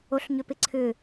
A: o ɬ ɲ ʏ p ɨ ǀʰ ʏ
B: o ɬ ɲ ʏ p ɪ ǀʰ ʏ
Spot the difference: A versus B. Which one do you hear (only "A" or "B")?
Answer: B